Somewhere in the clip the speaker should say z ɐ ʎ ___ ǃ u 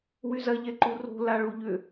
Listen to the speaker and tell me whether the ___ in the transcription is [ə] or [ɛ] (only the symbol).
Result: ɛ